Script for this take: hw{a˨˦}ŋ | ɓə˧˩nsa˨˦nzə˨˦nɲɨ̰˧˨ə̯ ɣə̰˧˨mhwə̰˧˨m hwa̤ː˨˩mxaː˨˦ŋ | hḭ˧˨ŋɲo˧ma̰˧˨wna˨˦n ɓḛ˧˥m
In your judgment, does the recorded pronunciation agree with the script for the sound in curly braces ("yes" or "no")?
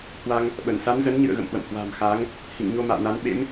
no